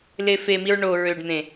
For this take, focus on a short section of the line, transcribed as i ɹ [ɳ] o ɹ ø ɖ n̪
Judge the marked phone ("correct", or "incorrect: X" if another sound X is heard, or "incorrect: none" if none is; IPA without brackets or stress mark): correct